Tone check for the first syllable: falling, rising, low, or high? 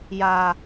low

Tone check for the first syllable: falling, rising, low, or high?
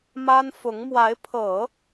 high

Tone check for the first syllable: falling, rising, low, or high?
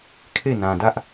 falling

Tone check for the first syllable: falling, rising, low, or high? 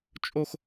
high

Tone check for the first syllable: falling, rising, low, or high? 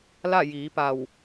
falling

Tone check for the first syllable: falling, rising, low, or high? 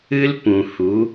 high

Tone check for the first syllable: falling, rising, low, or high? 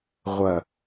low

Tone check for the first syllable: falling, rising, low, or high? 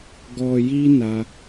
low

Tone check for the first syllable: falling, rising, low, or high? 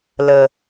low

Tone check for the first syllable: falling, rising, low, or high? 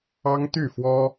high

